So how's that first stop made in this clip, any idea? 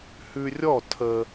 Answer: aspirated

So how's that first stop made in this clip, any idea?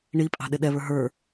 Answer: ejective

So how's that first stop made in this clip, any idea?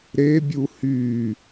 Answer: plain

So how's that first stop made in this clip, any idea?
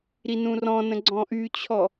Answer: click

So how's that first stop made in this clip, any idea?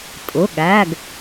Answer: ejective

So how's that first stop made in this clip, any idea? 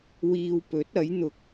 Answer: plain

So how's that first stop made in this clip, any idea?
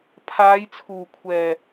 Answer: aspirated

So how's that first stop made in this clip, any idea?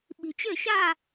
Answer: implosive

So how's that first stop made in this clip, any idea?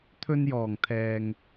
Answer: aspirated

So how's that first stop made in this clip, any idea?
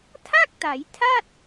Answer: aspirated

